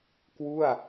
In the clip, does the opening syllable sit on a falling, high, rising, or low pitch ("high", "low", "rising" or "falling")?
falling